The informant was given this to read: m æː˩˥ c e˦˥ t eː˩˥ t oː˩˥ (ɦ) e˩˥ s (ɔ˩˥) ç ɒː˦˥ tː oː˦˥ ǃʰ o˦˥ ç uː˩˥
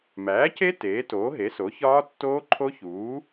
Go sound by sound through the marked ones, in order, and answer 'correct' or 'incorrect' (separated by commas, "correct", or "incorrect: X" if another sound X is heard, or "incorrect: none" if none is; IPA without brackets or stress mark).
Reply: correct, incorrect: o˩˥